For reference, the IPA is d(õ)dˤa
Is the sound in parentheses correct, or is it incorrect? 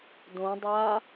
correct